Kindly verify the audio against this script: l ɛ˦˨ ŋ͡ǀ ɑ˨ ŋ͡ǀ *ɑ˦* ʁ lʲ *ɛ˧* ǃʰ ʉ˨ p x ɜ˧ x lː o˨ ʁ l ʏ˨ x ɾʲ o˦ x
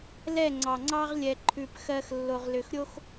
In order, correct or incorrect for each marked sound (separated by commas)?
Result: correct, incorrect